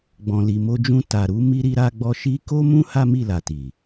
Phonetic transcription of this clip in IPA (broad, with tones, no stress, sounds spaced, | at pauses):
ɡ͡b ɔ̃˨ l i˨ m o˧ d͡ʒ ũ˧ t a˨ ɾ u˨˦ m i˦ ɾ i˦ ɾ a˧ ɡ͡b ɔ˧ ʃ i˦ k o˦ m ũ˦ h a˦ m i˦˨ l a˨ t i˨